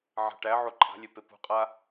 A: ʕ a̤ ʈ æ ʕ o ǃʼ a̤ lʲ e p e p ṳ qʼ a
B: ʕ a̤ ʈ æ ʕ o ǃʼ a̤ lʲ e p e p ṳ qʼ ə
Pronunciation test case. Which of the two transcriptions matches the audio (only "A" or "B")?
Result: A